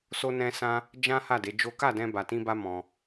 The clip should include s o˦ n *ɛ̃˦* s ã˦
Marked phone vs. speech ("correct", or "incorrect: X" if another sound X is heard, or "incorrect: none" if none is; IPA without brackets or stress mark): correct